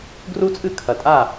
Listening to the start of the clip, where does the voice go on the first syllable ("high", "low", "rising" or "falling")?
high